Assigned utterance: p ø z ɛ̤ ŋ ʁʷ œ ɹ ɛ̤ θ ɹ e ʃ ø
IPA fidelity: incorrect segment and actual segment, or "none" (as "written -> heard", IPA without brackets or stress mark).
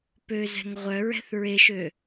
none